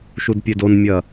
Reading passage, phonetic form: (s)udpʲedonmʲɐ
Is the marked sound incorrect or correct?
incorrect